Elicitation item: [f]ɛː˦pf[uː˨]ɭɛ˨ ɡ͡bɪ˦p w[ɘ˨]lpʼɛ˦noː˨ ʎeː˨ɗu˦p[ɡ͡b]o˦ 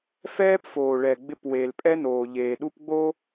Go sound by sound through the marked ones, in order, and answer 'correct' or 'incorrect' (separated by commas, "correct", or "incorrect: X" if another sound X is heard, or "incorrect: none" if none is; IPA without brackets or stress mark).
correct, incorrect: oː˨, incorrect: e˨, correct